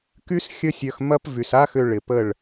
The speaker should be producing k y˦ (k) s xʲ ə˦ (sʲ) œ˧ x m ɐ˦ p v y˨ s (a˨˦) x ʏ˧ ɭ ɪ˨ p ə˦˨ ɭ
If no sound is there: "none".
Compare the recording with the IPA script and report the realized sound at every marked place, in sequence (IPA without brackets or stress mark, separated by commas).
none, sʲ, a˦